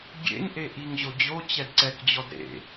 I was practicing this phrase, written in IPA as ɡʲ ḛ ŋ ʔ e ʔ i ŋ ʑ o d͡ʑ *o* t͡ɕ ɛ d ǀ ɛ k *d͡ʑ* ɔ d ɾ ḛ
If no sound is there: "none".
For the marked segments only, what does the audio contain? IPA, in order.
o, d͡ʑ

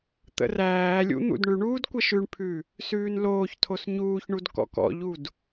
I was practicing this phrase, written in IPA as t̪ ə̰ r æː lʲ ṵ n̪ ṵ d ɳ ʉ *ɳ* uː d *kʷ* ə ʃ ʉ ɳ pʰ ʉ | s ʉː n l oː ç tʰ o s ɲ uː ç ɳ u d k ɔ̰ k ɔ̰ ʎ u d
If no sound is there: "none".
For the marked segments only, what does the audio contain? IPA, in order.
ɳ, kʷ

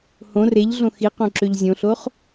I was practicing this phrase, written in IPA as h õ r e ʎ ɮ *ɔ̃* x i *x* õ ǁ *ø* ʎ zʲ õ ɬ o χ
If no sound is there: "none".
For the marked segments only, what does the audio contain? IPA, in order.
õ, q, ø

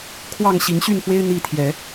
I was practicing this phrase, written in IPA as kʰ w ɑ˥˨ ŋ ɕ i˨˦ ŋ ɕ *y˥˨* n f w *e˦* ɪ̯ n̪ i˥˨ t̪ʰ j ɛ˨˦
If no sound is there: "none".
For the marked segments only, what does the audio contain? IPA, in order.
y˥˨, e˦

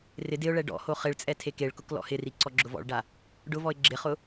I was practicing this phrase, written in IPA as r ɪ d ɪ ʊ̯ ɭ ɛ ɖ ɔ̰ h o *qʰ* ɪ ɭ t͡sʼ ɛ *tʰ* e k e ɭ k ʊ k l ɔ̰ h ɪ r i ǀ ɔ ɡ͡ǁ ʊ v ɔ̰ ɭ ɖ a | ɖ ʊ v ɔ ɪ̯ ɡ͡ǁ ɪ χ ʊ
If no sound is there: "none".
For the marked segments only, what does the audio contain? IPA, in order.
χ, tʰ

